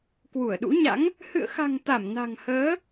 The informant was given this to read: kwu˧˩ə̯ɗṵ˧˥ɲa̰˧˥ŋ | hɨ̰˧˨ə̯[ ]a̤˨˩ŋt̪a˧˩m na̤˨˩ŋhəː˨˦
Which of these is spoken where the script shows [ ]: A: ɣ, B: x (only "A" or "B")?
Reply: B